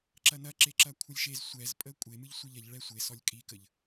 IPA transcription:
ǁɐnɐ ǁeǁɐkʷʰɐlʲʃez sʷɛzpʼə kʷʼe mɨʎsʷɛʎɐʎ ɭɛsʷesɔlʲ kʼikəʎ

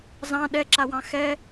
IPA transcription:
zɑ̃ ɗɛǁawɑ̃ xɛ

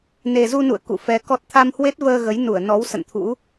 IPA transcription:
ne˨˩zu˧nṵ˧˨ə̯ kṵ˧˨fɛ˧ kɔ˨˩t̚ t̪ʰa˧mhwe˦˥t̚vəː˧ ɣə˨˦jnu˧˩ə̯nɔ˨˦w sə̰˧˨nt̪ʰṵ˧˥

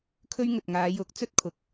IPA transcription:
kʰɵ˥ɥ ŋɵ˨t̚ŋaː˨˧jʊ˨˥k̚ t͡sɵ˥t̚kʰʊ˨k̚

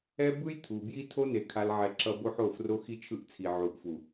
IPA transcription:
ɛ˦bɯ˦j t̪ʰu˨bji˦ tʰo˦ne˨ kʰa˦lʕɛ˦ǁʌ˦ bo˦ħo˦˨ fro˦xi˦t͡ʃʰɯ˦ʔt͡sʰi˨ ʕu˨ʔfu˨

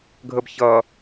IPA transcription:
ɡʱəbçʌ

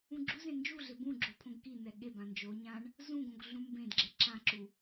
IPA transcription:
ũɡ͡ǁuzẽ nd͡ʒuɮɪ bũ ɡ͡ǁo pʰõɡkin̪ɛ ɠe bãnd͡ʒoɲãɳ | zũɡõɡ ɮũmbẽdɡ͡ǁe ǁãǁu

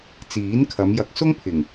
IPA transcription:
t͡siː˨˥nkʰɐ˨˧m jɐ˨˥k̚sʊ˥ŋpʰɪ˨˩ŋ

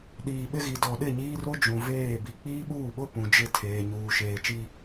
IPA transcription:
ɗiː˨ ɓɪ˦ɣi˨ dɔ˨ ɗɪ˦˨ɲiː˦ro˦ d͡ʒũ˨veː˦˨ bi˨k͡piː˦ɓuː˦˨ɓʊ˦ pũ˨d͡ʒɪ˦˨tʰeː˨ ɲuː˨ ʃeː˨t͡ʃi˦

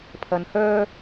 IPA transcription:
pʰɐ˧nhœː˥

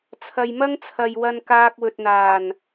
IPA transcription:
t͡sʰɐ˨jmɐ˥ŋt͡sʰɐ˨j wɐ˧nkaː˧k̚wɵ˨t̚n̪aː˨˩n

